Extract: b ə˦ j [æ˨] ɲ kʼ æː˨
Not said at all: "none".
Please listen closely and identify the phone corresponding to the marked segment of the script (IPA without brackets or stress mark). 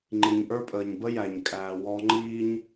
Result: æ˨